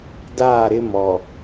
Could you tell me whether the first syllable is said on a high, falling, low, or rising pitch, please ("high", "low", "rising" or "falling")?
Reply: falling